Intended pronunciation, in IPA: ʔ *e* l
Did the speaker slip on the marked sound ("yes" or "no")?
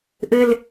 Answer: yes